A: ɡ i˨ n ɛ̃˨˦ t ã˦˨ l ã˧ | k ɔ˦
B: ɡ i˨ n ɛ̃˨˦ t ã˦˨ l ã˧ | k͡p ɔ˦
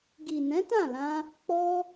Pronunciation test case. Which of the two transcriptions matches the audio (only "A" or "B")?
B